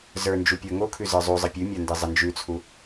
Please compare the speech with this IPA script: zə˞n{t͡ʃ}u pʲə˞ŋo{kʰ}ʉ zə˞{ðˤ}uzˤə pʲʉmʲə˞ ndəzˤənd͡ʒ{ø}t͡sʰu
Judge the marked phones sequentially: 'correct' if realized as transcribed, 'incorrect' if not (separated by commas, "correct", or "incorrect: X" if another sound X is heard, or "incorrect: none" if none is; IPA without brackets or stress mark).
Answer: incorrect: d͡ʒ, correct, incorrect: zˤ, incorrect: ʉ